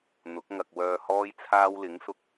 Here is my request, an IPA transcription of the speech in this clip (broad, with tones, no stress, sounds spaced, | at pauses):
n̪ ʊ˨˥ k̚ ŋ ɐ˨ k̚ w œː˨ h ɔː˧ j t͡sʰ aː˧ w l ɪ˨˥ ŋ s ʊ˧ k̚